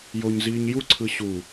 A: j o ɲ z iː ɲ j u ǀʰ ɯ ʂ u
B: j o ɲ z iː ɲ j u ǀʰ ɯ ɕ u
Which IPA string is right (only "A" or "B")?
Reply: B